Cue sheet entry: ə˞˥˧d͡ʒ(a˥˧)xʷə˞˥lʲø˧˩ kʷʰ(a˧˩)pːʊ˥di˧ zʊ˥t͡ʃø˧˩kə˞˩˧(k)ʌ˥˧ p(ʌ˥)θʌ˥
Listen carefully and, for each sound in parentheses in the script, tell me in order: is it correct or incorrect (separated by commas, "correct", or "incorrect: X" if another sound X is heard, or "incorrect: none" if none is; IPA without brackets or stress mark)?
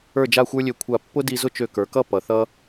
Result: correct, correct, correct, incorrect: ʌ˩˧